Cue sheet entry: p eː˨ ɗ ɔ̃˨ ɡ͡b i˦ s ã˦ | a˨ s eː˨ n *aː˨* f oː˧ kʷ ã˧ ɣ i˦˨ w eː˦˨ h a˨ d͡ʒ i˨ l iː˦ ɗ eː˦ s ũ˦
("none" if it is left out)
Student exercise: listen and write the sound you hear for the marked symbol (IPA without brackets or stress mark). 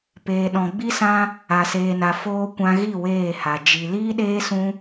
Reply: a˨